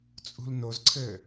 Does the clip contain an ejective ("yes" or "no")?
yes